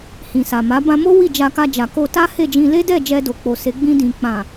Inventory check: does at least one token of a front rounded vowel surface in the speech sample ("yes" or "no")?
no